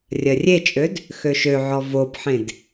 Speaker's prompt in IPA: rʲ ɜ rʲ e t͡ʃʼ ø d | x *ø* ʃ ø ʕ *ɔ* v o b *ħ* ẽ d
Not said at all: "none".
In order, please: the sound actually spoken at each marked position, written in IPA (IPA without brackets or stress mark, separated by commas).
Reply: ø, ɔ, ħ